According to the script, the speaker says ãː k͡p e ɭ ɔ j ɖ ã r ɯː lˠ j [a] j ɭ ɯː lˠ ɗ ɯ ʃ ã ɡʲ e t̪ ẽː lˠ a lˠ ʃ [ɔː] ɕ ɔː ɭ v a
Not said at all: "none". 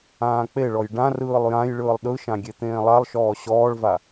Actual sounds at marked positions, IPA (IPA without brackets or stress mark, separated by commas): ã, ɔː